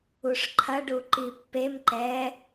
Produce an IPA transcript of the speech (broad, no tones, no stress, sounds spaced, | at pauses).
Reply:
u ʂ ǃʰ ɐ ɖ u ǃ i pː e m ǃ ɛ